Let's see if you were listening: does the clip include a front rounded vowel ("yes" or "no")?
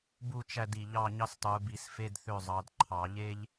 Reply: yes